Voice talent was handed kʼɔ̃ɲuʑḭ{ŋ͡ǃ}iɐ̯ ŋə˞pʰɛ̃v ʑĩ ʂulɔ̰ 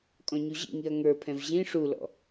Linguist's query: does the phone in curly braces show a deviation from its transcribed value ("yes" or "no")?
yes